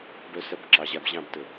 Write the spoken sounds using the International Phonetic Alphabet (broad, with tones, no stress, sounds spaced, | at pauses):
b œ˧ s ɐ˧ b ǁ ɑ˨ ʑ a˧ b ʑ ɑ̃˦˨ b t ə˨